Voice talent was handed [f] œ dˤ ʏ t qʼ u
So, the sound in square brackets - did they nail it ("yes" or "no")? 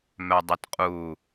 no